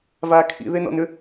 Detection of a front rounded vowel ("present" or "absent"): present